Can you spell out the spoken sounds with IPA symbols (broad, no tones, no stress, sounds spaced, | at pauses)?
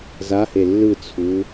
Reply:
z a h e lː ɯ t͡sʰ u